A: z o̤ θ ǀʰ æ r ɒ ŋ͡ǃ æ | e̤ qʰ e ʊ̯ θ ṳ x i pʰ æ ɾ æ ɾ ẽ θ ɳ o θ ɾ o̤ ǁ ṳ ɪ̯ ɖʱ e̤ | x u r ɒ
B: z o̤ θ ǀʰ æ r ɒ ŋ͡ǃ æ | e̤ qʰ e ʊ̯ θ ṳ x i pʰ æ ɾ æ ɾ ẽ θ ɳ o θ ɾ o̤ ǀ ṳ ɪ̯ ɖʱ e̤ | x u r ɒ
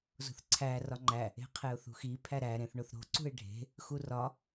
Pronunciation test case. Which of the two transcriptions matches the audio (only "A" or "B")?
B